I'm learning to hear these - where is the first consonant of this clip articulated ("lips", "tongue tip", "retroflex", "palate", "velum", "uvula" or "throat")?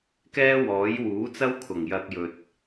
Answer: velum